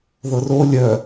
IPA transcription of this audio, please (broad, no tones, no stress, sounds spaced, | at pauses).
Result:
ð ɤ r o lʲ œ